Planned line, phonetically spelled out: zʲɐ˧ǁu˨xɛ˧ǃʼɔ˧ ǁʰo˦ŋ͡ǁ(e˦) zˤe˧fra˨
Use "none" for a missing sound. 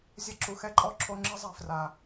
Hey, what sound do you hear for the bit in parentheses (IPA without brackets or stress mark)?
ɨ˦